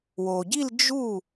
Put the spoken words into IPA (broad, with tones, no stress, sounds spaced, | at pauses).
w o˩ ɟ i˥˧ l d͡ʒ u˥˩